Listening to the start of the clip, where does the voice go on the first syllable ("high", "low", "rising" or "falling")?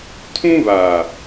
high